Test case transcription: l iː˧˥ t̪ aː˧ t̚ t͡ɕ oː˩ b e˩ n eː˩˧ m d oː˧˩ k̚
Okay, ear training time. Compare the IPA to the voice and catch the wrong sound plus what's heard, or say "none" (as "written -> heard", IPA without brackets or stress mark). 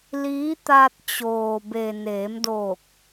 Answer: none